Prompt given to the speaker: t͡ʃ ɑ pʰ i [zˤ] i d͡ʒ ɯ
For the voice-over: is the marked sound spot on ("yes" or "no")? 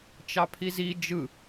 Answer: no